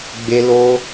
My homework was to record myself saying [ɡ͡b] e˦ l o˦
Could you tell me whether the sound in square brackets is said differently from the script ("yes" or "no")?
no